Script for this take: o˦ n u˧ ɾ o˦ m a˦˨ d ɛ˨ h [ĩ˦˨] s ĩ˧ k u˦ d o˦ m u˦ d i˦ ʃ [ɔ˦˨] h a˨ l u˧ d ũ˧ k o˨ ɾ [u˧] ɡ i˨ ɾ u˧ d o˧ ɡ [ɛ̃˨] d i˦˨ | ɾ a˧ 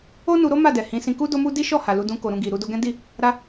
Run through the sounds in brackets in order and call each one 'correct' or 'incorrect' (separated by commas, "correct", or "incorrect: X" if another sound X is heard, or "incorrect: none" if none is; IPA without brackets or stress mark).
incorrect: ĩ˨˦, correct, incorrect: ũ˧, incorrect: ɛ̃˦